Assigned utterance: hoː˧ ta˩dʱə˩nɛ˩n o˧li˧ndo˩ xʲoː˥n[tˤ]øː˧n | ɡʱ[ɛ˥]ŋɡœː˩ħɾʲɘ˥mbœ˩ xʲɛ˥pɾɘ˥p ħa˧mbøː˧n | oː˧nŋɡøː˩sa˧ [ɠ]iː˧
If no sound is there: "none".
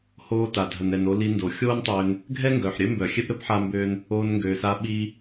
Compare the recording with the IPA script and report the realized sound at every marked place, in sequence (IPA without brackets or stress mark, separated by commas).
tˤ, ɛ˥, ɓ